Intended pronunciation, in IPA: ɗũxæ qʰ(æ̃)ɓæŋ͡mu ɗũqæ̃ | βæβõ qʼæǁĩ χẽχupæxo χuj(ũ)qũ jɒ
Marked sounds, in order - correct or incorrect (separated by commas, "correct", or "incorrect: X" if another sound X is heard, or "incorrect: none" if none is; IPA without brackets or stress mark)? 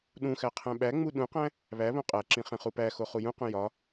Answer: correct, correct